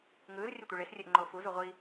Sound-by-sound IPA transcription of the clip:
ŋ ɯː z rʲ e tʷ ɯ ɭ e s rʲ e ʔ ŋ͡ǃ oː f u z u ʁʷ i

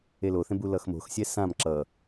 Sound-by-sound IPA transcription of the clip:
e l o θ ẽ b u l ʌ x m o̤ x sʲ ɛ s ã m ǁ ʌ

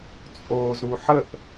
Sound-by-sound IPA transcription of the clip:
t͡sʼ oː z ɾ u ħ ə ʔ

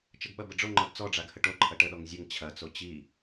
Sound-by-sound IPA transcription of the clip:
t͡ʃ ə ɡ ɓ ɐ b ə ɖ͡ʐ o ŋ͡ǃ ɔ d t͡s ɔ ɖ͡ʐ a ɡ h ə ʈ o ǃʰ ɐ ʈ ə ɗ ɔ ŋ zʲ ə ŋ t͡ɕʰ ɐ t͡s o t͡ɕ i

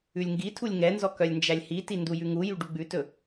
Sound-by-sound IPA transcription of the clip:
ʉ lʲ ŋ ɡ i tʰ u lʲ ŋ ɛ n z ɔ k œ lʲ n d͡ʒ æ lʲ h i t i n d u j ʉ ŋ u j y ɖ u ɡ͡b ʉ t ɵ

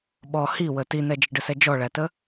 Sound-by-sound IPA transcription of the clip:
ɓ ɔ h i w ə t i n ɛ d͡ʒ ə ɖ ə s ɛ d͡ʒ ɔ ɭ æ t ə

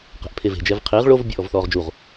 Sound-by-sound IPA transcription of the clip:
q ɛ̤ ʔ pʰ e v e̤ d͡ʒ ɛ v qʰ i ʁ ɭ o v bʲ ɔ ʔ ɔ v θ ɔː ʁ d͡ʒ u ʁ

